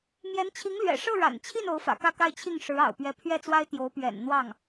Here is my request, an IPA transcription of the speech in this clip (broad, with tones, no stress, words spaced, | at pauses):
mjɛ˧˥nt͡ɕʰi˧˥ŋlɥɛ̰˨˩ ʂɤ˥˩ ɻa̰˨˩nt͡ɕʰi˥˩n o˧˥ʊ̯fä̰˨˩kä˥˧ka˥˧ɪ̯ t͡ɕʰi˥˩ŋ ʂɻ̩˧˥ ɑ̰˨˩ʊ̯pɥɛ˥˧ pʰɥɛ˥˩t͡swa˥ɪ̯ t̪jo˧˥ʊ̯ pɥɛ̰˨˩nn̪wɑ˥˩ŋ